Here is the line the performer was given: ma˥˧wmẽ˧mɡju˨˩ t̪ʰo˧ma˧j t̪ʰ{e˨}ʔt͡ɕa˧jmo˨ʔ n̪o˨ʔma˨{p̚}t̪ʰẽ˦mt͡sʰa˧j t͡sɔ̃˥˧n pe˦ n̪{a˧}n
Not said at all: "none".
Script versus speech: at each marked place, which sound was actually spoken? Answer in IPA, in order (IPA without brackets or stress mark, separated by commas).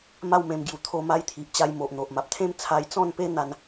i˨, p̚, a˧